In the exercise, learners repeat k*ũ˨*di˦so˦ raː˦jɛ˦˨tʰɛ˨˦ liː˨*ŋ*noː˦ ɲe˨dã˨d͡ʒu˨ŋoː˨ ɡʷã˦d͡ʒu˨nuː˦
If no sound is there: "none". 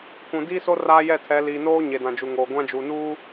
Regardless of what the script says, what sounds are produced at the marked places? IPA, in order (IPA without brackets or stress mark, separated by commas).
ũ˨, none